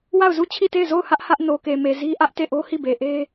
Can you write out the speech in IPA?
w a˦˨ ʊ̯ z u˦˨ t͡ɕʰ i˦˨ t e˦˨ ɪ̯ z o˦˨ ʊ̯ h ä˦ ʔ h ä˦ ʔ n o˨ k e˨ m e˨ z i˦ ʔ ä˦ ʔ t e˦˨ ʔ o˦ h i˦˨ b e˨ ʔ e˦

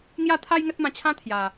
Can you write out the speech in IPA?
ŋ j a˥˧ t̪ʰ a˦ j ŋ ə˦ t̚ m ã˧ t͡ɕʰ ã˦ t̪ʰ j a˨˩

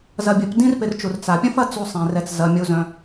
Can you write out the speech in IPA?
z ɐ˨ bʲ ɐ˨ p d ĩ˥ r p ɪ˨ r t͡ʃ u˩ r t͡s a˩ pʲ ɐ̃˥ f ɐ˦ t͡s u˨ sˤ ɛ̃˩ r ɛ˨ t͡s z ɐ˩ mʲ u˨ z œ̃˨

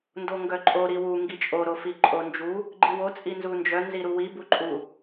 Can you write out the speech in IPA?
n d o ŋ ɡ œ ǃʼ o ɾ i w u ŋ ɡ i t͡ʃʼ o ɾ o f i ǃʼ o n d͡ʒ u | ɡ͡ǃ i w o t͡sʼ i n z u n d͡ʒ œ n z i ɾ u w i b u ǃʼ u

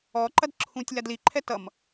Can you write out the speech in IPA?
ɔ ǃ ɐ d ǁʰ ũ tʲ l a d l i ǃʰ ɛ t ʌ m

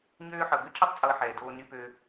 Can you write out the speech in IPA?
ɲ øː˦ ħ ɤ˨ ɡ ø˥ cʰ e˦ tˤ t͡sʼ ɤː˨ ħ ɛː˩ d oː˨ n y˨ p ø˨

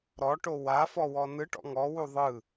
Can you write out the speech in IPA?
ɾ ɔ ʈ o w a f ɔ w ɔ n ɯ ʈ ɔ̰ ŋ ɔ w u ðˤ ɯ

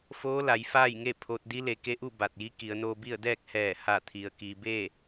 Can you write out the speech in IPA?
f oː˧˥ l a˩˧ j f aː˥˨ j ŋ e˥˨ pʰ o˧ t̚ d i˧˥ l e˩˧ k e˧˥ ʔ u˥˨ b a˧˩ t̚ j i˧˥ k i˩˧ ə̯ n oː˧ b i˥˨ ə̯ d ɛː˥˨ k̚ h ɛː˧˩ h a˧˩ t̪ʰ i˩ ə̯ k iː˩ b eː˥˨

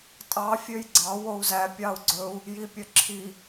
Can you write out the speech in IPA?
tʼ ɑ fʲ ø j ɡ͡ǀ ɑ w o u̯ z æ pʲ ɑ u̯ ɡ͡ǀ ɵ u̯ | j i pʲ œ ǁʰ i

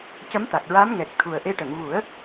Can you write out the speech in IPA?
c ə˧˥ m t̪ a˨˩ k̚ ɹ a˧˥ m ŋ ɛ˨˩ k̚ t̪ʰ u˨˩ ə̯ ʔ e˧ ʈ ə˨˩˨ ŋ v u˨˩˦ ə̯

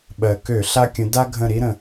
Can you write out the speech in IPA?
ɓ ɜ˩ k ø˧˩˧ ɬ a˦ kʲ ə̃˨˦ d a˦ ɡʱ ə̃˧˩ ɾ i˦ ɾ ə̃˩

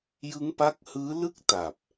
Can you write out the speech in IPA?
j ɯ˦˥ ŋ p a˦˥ k̚ h ɯː˦˥ l ɯ˥˩ k̚ t a˨˩ p̚

